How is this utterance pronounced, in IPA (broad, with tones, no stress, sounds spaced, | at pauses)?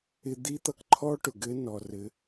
ɪ˧ d̪ i˧˥ t̪ ʌ˧ k ǃʰ ɔ˥ ʈ ʊ˩ ɡ ɘ˧˥ n ɔ˩ r ɘ˩˧